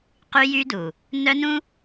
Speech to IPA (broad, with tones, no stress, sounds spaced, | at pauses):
q y˦ j y˦ d u˨ | n œ˦ n ũ˦